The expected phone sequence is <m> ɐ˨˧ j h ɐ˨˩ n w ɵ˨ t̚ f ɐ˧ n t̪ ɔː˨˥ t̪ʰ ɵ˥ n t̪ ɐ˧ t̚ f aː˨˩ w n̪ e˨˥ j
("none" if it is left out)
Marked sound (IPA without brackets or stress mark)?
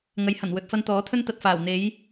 ŋ